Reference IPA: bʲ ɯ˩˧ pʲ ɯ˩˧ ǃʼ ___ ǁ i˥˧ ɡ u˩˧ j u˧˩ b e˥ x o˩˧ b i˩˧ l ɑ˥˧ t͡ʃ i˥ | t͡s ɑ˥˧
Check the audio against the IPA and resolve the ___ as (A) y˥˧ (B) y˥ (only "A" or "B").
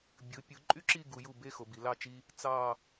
B